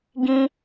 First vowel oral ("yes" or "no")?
no